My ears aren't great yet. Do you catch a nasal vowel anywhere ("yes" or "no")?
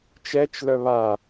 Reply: no